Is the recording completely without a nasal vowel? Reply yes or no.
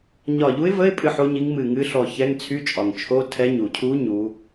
yes